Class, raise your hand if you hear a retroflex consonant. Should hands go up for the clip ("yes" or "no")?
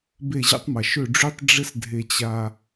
yes